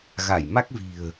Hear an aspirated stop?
no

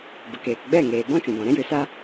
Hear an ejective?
no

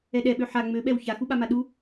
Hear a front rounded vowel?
yes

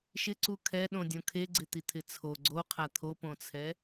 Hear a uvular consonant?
yes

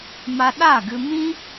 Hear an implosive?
yes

